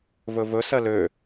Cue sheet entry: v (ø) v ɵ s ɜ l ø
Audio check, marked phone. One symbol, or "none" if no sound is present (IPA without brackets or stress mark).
ɵ